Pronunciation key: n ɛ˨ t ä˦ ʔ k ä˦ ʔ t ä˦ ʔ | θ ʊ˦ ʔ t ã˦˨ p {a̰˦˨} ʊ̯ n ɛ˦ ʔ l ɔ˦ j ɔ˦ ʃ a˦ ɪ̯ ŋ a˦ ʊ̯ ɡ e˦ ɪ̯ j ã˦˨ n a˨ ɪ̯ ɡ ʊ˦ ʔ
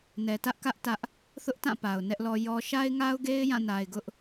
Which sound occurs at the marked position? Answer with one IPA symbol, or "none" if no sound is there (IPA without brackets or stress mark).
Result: a˨